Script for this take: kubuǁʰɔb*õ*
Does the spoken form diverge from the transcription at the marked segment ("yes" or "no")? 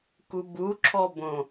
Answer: no